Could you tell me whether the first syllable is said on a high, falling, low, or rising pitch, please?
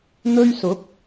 high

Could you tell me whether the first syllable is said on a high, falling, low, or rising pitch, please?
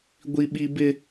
high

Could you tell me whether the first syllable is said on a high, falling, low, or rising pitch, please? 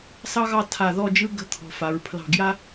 high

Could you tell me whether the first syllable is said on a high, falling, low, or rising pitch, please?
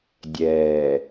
low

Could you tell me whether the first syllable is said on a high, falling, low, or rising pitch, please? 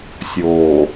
low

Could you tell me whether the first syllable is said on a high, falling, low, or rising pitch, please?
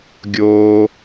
high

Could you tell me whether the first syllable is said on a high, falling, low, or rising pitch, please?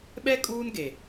high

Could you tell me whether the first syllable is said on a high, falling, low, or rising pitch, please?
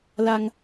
low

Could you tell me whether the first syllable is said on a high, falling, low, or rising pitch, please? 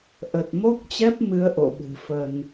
low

